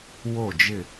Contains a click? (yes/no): no